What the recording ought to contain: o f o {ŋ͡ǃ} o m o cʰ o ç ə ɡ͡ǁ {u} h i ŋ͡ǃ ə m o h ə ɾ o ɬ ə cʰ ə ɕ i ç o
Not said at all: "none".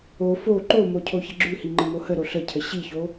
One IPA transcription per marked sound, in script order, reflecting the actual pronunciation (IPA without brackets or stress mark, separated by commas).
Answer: ǃ, ʉ